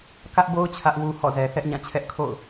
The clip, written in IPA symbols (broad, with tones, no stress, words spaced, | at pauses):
kä˦ʔbo˦ʊ̯ t͡ɕʰä˦ʔwu˦hɔ̰˦˨ zɛ˨θɛ˦ʔɲã˦˨ t͡ɕʰɛ˦ʔkʰo̰˦˨ʊ̯